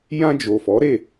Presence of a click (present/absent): absent